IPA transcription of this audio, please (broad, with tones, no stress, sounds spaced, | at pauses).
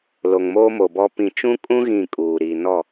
l o˨ ŋ m oː˦ m o˨ b ɔ˦ p ĩ˨ t͡ʃ ũ˦ kʼ ũ˦ ɣ ĩ˦˨ kʼ uː˨ ɾ iː˨ n ɔ˦˨